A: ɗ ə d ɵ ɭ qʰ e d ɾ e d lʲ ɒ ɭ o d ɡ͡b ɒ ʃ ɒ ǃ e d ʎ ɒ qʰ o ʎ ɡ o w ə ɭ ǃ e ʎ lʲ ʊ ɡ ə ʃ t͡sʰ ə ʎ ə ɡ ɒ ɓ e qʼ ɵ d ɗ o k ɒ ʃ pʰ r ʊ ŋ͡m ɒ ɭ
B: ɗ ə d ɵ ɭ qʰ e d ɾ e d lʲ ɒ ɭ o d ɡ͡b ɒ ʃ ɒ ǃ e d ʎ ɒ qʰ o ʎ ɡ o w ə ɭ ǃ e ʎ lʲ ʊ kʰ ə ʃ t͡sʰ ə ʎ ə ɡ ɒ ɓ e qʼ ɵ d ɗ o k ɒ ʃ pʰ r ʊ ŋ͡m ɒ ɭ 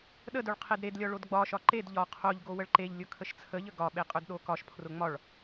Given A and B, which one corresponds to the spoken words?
B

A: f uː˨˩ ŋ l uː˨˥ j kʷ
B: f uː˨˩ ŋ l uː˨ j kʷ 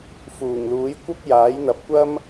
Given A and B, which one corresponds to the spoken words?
A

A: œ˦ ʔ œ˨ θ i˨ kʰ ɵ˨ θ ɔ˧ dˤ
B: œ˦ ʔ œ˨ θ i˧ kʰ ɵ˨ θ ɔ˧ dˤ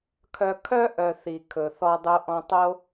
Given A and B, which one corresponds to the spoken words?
A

